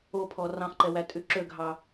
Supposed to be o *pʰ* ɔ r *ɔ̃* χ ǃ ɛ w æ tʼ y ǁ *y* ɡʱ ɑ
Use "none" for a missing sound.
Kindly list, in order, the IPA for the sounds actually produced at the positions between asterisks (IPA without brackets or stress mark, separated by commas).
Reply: pʰ, ɑ̃, ø